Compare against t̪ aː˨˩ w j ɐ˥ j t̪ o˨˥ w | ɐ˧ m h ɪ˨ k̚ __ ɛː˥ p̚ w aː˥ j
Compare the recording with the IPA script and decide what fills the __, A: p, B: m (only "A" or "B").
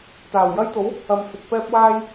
A